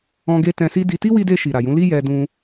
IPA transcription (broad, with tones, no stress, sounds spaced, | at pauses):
ɔ̃˧ ɡ e˧ t ɛ̃˧ s i˦ d i˧ t i˦ w i˧ d e˧ ʃ i˨ ɾ a˨ j ũ˨˦ l i˦ j ɛ˧ d ũ˧